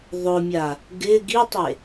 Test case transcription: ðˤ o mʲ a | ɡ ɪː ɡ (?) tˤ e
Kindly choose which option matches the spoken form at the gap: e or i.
i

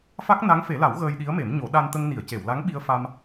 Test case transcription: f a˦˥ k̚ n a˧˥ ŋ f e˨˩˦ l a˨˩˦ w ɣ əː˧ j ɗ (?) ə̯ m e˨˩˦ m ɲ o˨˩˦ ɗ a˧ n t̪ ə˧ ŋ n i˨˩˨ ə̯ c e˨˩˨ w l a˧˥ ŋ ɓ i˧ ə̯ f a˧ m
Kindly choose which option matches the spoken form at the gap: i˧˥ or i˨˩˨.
i˧˥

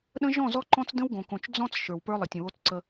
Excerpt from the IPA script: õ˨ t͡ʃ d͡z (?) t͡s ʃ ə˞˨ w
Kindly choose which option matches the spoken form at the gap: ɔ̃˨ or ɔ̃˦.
ɔ̃˦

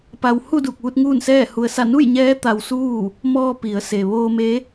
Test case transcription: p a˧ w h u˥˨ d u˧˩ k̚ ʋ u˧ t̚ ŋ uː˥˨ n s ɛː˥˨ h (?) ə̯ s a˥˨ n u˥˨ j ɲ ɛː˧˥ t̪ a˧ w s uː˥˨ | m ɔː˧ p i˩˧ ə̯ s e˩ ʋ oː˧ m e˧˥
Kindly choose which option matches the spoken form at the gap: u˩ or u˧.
u˧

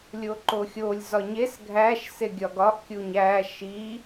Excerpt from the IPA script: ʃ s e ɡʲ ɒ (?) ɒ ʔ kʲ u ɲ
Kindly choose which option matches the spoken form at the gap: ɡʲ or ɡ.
ɡ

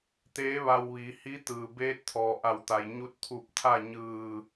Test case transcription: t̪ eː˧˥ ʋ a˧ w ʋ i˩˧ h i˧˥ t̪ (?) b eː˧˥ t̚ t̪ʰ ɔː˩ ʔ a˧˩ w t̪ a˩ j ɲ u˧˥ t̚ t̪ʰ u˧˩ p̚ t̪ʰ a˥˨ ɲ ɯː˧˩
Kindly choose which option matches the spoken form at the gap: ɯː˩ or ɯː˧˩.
ɯː˩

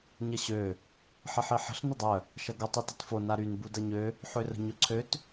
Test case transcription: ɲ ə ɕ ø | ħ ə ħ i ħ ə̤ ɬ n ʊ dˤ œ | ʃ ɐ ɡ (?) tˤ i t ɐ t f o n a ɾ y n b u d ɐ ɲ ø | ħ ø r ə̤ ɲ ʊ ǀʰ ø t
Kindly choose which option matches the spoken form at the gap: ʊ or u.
ʊ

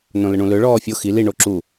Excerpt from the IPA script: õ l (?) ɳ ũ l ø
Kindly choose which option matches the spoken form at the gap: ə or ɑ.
ə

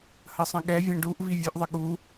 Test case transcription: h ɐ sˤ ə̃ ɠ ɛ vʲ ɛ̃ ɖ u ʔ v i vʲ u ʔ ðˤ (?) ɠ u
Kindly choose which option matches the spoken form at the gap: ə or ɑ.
ə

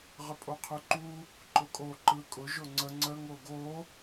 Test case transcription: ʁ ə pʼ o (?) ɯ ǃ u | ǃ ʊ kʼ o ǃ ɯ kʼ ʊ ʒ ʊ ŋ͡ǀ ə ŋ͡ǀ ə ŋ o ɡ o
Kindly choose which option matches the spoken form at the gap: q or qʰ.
qʰ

